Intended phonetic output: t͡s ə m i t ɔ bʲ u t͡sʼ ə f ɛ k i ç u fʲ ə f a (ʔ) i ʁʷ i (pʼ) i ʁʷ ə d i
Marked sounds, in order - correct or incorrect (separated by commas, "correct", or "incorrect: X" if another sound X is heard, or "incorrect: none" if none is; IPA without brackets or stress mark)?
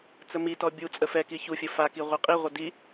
incorrect: k, incorrect: qʼ